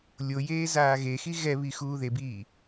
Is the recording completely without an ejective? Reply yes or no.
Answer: yes